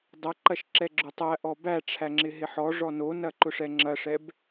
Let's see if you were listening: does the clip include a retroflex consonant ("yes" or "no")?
yes